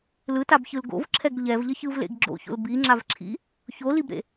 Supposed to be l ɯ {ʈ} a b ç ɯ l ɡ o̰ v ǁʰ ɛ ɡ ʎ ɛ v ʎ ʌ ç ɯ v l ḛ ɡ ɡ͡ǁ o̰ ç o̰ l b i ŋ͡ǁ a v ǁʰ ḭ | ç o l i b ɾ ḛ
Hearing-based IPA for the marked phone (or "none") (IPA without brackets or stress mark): t